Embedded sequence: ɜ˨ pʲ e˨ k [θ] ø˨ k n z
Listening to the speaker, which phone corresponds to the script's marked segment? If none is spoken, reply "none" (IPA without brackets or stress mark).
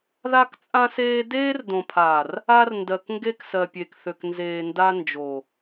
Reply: θ